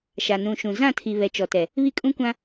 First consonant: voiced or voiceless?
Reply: voiceless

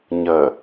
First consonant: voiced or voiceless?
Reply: voiced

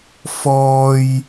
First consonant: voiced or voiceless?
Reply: voiceless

